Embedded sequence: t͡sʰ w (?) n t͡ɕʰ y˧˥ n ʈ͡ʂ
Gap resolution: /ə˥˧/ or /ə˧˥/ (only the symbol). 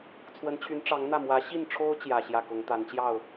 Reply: ə˧˥